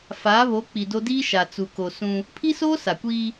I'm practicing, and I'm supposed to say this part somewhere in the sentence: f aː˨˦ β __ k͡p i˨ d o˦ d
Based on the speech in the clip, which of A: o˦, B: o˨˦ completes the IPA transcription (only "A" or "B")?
B